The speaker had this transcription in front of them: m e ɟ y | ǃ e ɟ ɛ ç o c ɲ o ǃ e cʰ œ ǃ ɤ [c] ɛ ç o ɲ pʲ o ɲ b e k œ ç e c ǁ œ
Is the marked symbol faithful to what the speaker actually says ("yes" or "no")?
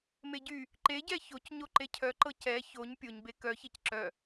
yes